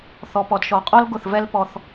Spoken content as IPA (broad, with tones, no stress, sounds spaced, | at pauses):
θ ɔ˨ p ɔ˨ d ʃ ɔ˨ qʼ ɔ˦ l ɡ ʊ˦˨ θ v ɛ˦ l p ɔ˧ θ